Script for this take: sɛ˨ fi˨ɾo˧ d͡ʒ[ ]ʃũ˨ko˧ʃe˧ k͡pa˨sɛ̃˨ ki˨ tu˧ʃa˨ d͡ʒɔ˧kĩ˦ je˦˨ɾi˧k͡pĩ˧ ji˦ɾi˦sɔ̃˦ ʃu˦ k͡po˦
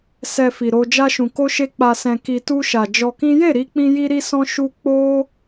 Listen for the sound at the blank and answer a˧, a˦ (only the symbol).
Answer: a˧